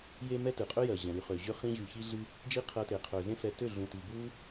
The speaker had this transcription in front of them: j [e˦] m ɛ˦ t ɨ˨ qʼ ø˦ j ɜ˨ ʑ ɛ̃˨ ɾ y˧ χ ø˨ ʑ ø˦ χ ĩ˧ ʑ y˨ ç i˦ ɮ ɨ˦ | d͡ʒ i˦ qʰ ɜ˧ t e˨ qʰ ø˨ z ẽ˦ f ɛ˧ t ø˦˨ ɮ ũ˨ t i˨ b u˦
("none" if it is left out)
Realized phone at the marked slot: e˦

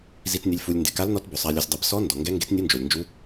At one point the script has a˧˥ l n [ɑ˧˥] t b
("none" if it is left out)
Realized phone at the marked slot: ɔ˧˥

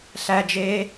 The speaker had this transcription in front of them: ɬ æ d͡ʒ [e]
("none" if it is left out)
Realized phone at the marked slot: eː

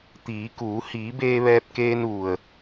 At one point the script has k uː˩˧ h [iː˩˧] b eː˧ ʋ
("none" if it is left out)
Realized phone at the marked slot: iː˩˧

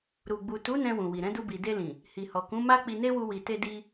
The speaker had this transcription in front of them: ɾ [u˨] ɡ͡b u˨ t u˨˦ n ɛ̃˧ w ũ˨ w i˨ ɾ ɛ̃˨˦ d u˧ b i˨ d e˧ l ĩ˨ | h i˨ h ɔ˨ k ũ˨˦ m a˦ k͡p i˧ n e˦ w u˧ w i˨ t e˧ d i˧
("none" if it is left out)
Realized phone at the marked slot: u˨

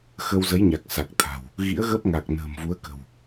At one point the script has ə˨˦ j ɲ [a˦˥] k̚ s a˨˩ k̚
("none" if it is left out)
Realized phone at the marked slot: a˨˩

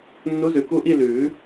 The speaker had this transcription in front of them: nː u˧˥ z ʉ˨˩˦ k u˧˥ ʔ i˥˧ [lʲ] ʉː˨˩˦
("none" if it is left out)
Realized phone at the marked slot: l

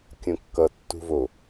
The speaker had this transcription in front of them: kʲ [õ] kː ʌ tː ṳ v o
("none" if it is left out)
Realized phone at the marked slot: õ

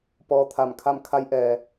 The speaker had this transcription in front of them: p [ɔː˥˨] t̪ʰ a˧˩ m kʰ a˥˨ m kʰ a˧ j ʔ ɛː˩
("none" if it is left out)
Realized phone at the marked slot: ɔː˧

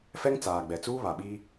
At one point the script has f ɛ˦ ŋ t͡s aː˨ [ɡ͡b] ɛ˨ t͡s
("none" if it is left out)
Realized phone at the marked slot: ɡ͡b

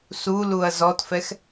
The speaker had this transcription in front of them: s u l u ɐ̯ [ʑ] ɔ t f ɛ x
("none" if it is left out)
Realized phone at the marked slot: z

